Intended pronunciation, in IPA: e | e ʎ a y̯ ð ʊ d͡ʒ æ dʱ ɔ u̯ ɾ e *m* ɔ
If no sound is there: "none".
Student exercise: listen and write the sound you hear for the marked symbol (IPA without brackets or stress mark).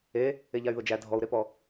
p